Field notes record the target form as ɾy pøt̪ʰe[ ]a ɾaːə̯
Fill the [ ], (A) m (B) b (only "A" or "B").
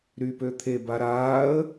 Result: B